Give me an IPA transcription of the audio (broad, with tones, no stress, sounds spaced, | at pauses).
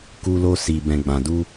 k u˧ l o˧ s i˨ b ɛ̃˨ ɡ͡b ã˨ d u˧